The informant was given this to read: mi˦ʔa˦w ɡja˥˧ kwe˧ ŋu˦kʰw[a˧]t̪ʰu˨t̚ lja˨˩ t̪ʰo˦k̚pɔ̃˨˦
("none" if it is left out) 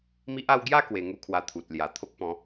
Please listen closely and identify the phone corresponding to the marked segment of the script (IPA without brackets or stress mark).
a˧